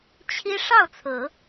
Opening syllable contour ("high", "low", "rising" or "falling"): high